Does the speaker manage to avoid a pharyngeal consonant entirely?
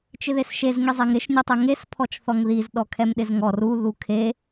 yes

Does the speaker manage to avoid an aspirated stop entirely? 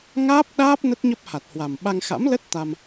yes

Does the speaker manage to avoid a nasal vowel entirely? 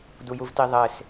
yes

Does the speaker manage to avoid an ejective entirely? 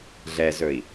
yes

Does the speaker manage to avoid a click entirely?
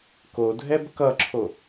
no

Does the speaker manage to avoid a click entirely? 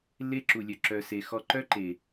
no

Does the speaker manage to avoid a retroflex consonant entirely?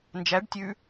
no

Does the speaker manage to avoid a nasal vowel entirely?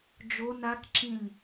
no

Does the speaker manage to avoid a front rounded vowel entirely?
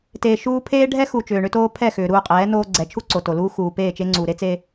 no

